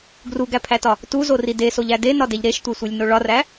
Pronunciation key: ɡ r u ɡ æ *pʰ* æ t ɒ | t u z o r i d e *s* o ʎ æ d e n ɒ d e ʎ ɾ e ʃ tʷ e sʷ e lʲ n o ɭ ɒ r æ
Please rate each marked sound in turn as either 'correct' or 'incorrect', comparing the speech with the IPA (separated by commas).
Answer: correct, correct